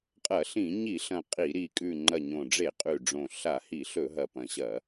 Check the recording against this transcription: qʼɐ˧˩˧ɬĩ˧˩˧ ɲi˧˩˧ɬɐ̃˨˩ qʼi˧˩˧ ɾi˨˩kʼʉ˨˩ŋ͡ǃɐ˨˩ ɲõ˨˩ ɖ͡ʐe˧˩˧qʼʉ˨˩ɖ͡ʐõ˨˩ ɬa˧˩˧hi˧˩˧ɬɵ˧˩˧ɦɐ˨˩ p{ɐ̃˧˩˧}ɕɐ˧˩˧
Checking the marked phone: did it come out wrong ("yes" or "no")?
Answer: yes